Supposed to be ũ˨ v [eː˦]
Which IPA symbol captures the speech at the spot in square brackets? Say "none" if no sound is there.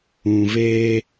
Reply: eː˦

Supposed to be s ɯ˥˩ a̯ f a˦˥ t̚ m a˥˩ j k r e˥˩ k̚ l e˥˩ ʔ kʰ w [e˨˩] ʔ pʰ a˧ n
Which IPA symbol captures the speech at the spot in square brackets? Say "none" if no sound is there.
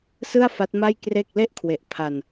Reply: e˨˩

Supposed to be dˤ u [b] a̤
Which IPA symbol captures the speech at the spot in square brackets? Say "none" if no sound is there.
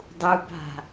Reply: b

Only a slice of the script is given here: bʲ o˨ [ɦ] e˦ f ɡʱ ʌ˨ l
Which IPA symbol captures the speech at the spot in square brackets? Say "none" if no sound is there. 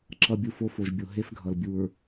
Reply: ɦ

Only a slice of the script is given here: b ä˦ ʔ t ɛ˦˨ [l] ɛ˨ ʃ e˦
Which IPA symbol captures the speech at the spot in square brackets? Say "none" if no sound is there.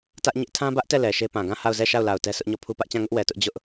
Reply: l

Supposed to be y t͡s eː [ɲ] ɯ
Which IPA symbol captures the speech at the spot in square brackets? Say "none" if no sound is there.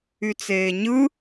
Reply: ɲ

